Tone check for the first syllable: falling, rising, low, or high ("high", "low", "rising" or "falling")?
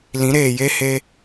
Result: rising